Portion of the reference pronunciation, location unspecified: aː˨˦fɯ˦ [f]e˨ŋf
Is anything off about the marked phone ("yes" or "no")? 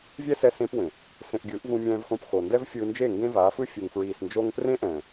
yes